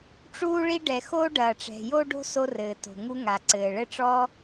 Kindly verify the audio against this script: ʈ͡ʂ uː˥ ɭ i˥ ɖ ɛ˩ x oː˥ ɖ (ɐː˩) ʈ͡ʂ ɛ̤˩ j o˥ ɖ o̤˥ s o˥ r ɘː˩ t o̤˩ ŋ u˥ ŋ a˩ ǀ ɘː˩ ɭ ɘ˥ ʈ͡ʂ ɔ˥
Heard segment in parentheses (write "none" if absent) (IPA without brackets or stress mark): ɐː˩